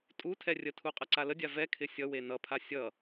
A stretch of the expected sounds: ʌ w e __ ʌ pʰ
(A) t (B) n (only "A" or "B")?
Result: B